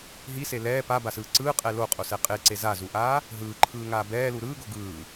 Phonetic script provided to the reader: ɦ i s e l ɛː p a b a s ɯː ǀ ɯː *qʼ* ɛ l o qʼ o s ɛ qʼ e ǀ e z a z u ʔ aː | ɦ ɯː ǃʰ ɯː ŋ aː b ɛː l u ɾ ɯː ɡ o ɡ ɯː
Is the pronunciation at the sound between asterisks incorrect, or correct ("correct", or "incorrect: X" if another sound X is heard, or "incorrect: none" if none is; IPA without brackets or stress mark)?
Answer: correct